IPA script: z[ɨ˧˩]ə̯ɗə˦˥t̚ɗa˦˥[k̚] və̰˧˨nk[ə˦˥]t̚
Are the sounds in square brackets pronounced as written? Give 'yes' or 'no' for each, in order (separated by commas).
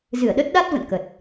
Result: yes, no, no